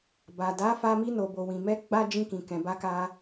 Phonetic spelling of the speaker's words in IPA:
ba˨da˨˦fa˧ mi˧no˨bo˨ wĩ˨mɛ˧ ɡ͡ba˧ d͡ʒĩ˧kĩ˨ kɛ̃˨ba˧ ka˧

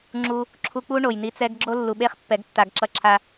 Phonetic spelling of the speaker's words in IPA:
ŋ͡ǁu˧ | ǁʰu˧k͡pu˦ ɳo˨jni˦t͡sɛ˦ɡ ɡ͡ǁo˦lːu˨ɓe˦χ pːɛ˨˦ɡtːa˨ɡǁʌ˧ǁʰa˧

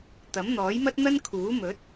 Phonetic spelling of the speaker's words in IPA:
t̪ɐ˨˥mn̪ɔː˨˥jmɐ˥t̚n̪ɐ˥n kʰuː˨˥mɵ˨˥t̚

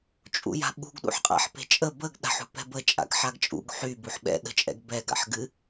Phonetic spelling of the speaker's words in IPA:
t͡ʃʼṵja̤ɓṳɡ ɗṵħqʼa̰ħpe̤t͡ʃʼə bəɡ ɗa̤ħṳpɛ̤bə t͡ʃʼa̰ɡħaɡt͡ʃʼṵɡ ħy buħɓɛ̰ ɗə̤t͡ʃʼɛ̰ɡbɛ ɡa̰ħɡɨ

